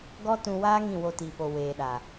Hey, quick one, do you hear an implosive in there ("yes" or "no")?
yes